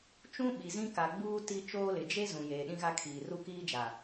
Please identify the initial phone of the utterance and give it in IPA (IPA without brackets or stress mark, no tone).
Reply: t͡ʃ